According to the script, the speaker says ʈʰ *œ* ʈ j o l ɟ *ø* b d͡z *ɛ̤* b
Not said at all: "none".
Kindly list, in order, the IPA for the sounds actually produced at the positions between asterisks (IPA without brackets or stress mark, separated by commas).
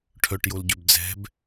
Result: œ, ø, ɛ̤